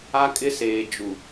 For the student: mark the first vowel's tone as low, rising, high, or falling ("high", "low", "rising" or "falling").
high